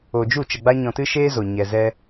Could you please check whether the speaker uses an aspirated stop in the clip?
no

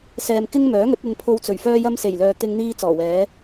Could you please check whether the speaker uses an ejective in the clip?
no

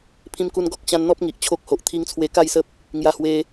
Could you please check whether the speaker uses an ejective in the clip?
no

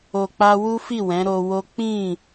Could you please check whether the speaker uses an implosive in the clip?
no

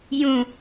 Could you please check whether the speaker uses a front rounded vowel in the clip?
no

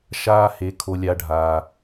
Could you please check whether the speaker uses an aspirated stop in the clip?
yes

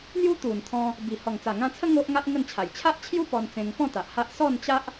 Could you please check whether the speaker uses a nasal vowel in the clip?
yes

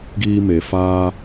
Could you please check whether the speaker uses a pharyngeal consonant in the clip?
no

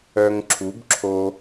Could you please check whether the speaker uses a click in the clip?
yes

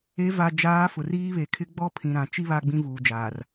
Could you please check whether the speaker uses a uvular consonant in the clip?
no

